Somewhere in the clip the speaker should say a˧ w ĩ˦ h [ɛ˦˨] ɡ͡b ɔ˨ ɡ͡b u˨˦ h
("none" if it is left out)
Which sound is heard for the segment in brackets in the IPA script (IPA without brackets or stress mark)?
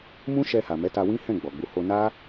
ɛ̃˦˨